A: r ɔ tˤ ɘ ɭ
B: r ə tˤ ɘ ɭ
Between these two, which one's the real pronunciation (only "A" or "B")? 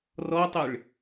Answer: A